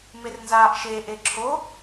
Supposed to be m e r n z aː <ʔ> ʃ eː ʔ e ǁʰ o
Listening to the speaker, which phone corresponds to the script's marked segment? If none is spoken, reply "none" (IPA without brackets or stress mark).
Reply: ʔ